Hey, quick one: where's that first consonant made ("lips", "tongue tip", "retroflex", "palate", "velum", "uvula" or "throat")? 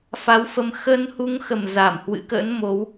lips